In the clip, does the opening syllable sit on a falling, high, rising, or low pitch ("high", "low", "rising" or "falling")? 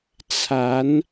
rising